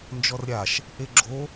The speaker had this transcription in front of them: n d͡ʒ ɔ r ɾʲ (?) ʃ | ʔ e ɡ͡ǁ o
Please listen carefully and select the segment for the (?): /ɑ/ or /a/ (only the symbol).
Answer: a